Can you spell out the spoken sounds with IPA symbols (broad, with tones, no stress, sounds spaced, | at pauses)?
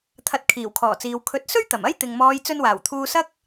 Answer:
t̪ʰ ɐ˧ t̚ kʰ iː˨˩ w kʰ ɔː˨˩ t͡s iː˨ w kʰ ɵ˨˥ t̚ s ɵ˥ ɥ t̪ ɐ˨˩ m ɐ˥ j t̪ ɪ˨ ŋ m ɔː˨˧ j t͡s ɵ˧ n w aː˨˩ w t̪ʰ uː˧ s ɐ˥ k̚